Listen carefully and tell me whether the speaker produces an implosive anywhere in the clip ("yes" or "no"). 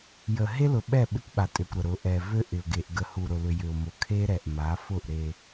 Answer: yes